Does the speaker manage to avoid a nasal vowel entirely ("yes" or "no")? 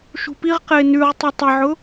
yes